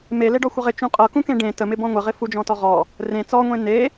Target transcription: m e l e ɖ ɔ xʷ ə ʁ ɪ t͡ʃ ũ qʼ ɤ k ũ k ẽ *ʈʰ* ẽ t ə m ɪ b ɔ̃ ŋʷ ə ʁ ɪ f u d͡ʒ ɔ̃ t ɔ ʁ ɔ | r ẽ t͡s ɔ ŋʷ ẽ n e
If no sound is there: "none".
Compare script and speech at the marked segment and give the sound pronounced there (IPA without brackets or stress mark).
ɖ